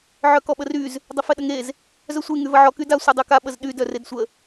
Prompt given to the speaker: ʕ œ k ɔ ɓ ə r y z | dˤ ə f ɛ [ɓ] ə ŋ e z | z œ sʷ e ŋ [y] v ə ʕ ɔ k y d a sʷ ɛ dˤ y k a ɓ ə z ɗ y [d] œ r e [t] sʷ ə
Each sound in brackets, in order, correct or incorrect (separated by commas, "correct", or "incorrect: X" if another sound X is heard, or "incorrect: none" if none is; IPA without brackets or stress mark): incorrect: ɗ, correct, correct, incorrect: d